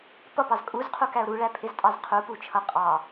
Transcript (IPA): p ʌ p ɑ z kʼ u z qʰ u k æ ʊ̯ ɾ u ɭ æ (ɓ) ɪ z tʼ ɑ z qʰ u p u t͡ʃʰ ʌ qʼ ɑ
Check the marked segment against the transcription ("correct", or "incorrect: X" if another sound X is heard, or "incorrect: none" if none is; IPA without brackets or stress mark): incorrect: pʰ